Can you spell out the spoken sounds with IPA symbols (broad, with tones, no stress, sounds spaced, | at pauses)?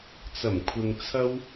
t͡s ɐ˨˩ m kʷʰ ɪ˨ ŋ t͡sʰ ɐ˥ w